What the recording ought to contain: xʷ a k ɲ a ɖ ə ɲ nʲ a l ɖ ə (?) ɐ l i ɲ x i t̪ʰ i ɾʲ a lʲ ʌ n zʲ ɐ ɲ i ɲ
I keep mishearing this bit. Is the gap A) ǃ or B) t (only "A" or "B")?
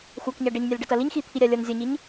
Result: B